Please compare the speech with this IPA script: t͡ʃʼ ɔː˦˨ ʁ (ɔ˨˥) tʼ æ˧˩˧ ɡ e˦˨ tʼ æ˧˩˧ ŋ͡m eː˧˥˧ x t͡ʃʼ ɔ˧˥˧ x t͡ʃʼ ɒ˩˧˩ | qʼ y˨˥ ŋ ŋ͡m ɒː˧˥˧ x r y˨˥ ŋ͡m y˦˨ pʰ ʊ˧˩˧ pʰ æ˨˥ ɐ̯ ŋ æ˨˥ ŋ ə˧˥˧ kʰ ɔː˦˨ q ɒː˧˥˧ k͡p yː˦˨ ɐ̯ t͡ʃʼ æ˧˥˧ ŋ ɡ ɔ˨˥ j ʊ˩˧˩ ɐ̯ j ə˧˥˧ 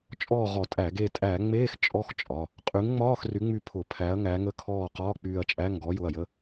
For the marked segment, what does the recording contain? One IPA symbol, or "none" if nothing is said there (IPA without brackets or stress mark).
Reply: ɔ˧˩˧